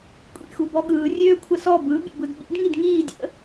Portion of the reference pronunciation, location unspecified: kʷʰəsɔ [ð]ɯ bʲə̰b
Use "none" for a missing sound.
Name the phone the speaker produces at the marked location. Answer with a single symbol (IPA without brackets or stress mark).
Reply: b